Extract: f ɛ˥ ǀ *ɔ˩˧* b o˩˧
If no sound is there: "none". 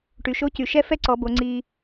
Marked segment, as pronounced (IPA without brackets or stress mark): ɔ˩˧